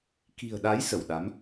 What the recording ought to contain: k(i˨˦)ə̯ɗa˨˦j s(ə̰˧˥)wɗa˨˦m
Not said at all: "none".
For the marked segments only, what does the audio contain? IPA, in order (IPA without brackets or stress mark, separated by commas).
i̤˨˩, ə˧˩